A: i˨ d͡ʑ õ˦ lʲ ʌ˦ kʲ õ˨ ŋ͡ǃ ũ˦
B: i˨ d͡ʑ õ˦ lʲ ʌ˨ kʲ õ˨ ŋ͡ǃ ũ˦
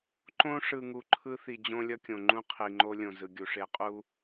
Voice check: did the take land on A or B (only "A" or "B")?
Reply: A